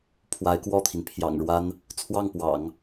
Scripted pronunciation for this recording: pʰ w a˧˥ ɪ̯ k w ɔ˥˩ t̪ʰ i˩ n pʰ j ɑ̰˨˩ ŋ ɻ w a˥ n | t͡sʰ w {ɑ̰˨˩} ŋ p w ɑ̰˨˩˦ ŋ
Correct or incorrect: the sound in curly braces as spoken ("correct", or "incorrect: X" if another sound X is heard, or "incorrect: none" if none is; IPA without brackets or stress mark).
incorrect: ɑ˥˩